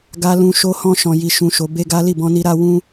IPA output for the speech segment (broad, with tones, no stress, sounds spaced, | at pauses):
ɡ a˧ l ũ˧ ʃ o˦ h ɔ̃˦ ʃ ɔ̃˧ j i˧ ʃ ũ˧ ʃ o˧ b e˦ ɡ a˦ l i˦˨ b ɔ̃˧ n i˧ ɾ a˧ w ũ˦